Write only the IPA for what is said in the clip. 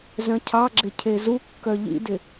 z œ̃ cʰ ɑ ɡ͡ǁ ɪ cʰ e z u kː œ ʎ ḭ d ɪ

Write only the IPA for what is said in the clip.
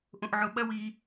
ʔ õ ʔ ʕ o ɓ ɐ w i

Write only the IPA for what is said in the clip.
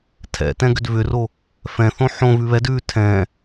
tʰ ɛ̰ t ɛ̃ ɡ ʏ d v ʏ r o | f ɛ̃ θ õ ħ õ v ʉ β ɛ d ʉ tʰ ɛ̃

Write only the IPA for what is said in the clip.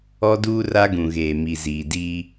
ɔ˦ d uː˦ r a˦ ɡ ũ˨ ɣ eː˨ m i˨ z iː˨ d iː˦

